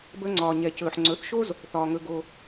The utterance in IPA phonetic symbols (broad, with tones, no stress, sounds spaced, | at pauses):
b əː˧ ŋ͡ǀ ɒː˨ ɲ ɛ˨ c ɵː˨ ħ ŋ͡ǀ ɵ˨˦ θ ʃ o˦ z | θ ɒː˨ ŋ ɵ˧ ɡ o˧